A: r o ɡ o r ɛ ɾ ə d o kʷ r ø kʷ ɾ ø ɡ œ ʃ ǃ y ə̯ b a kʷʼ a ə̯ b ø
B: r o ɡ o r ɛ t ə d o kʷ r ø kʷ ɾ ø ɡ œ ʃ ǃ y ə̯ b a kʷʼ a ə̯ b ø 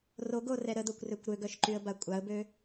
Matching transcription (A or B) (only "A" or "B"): A